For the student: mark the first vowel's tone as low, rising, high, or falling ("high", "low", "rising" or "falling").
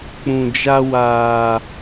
low